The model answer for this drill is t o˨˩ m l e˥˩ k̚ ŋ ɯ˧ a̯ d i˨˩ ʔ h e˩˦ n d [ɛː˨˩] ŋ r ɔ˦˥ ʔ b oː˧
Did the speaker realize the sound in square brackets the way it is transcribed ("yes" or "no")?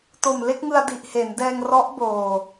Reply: no